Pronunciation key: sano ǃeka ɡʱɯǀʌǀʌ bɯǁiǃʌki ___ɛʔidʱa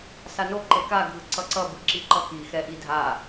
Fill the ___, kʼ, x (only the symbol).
x